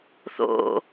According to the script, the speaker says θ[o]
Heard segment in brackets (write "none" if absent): o̰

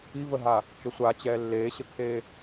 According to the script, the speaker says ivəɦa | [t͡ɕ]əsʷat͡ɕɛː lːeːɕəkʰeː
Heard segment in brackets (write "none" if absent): t͡ʃ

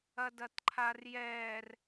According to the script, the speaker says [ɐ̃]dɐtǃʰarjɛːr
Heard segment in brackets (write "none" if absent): ɐ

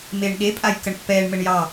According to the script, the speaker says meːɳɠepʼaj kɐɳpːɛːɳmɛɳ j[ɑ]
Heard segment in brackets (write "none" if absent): ɑ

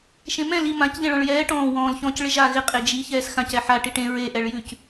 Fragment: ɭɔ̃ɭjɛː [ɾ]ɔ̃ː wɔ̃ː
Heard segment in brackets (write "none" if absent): ʈ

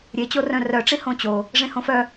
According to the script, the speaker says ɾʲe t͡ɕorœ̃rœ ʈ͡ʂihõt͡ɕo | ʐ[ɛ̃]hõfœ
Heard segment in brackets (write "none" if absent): ẽ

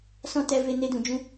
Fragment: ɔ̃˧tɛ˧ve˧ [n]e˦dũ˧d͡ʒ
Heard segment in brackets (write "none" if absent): n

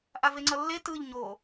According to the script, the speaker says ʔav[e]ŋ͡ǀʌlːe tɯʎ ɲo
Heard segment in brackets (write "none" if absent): e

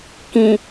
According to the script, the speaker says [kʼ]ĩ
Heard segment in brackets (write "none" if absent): k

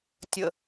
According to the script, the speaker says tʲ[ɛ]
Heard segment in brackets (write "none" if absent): ə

